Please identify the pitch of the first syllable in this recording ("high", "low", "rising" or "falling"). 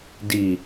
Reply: low